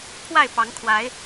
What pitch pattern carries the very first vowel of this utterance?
falling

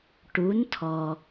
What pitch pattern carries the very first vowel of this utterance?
rising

